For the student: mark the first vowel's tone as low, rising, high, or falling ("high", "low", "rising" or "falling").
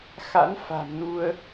rising